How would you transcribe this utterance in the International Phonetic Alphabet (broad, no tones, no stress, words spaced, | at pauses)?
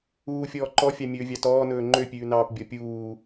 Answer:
uːfʲɔː ǃɔfʲɑmʲɵːvʲɑ tɔːnɵː ŋ͡ǃøpʲʉːnɑːpbʲɔ pʲuː